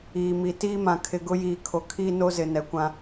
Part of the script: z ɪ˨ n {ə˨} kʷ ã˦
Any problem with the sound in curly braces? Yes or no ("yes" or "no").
yes